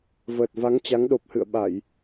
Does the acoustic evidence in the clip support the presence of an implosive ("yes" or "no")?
yes